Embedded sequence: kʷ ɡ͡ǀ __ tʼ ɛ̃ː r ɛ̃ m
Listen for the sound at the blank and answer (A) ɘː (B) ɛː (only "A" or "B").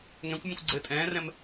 A